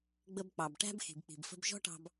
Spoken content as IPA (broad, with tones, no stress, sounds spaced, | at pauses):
ɡ͡b ə˧ b k͡p ɑ˨ b ʈ æ̤˦ b x i̤˨ b k͡p i̤˨ b f ə̤˧ b ʒ ɔ̤˦ ʈ ɑ̤˧ b